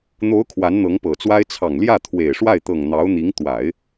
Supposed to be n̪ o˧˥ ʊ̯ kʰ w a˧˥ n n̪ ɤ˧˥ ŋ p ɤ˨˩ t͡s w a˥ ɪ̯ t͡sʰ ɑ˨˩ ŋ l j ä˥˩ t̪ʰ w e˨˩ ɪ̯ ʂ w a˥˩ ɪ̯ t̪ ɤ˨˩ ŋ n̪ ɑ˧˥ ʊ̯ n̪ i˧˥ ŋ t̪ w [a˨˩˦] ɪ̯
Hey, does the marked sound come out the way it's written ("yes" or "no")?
yes